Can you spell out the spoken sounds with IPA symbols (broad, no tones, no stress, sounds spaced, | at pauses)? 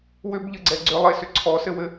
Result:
w ʏ b ʎ ɘ ɡ͡ǀ ɛ ɡ͡ǀ ʏ lˠ e s ʏ ǀʰ ɔ s ɘ w ɘ